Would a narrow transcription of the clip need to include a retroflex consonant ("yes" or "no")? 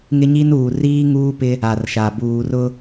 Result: no